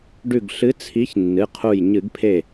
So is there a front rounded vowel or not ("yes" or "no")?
no